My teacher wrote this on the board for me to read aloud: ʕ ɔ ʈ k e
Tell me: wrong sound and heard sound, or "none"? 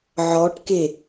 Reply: none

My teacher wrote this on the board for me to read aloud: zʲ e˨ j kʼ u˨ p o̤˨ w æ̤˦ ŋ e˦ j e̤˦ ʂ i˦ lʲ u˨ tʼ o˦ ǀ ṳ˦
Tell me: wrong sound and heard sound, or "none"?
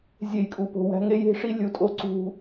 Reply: none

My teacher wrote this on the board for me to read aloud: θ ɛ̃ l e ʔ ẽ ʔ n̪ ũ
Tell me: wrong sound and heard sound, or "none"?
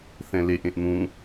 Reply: none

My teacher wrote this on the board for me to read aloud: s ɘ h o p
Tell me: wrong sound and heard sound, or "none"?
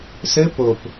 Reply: h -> p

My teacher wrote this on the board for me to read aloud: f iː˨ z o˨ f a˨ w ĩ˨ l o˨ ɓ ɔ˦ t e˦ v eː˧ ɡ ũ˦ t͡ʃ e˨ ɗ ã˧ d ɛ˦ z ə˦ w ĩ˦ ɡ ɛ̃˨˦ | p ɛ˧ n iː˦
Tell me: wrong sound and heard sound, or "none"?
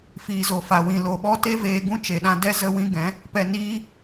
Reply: none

